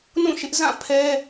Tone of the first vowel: falling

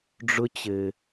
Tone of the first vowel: high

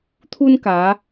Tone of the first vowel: high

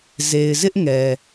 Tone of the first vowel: low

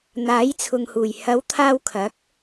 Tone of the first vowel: rising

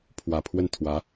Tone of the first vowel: low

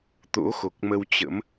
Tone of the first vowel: rising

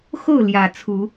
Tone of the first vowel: falling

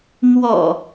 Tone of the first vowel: low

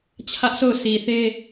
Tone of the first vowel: high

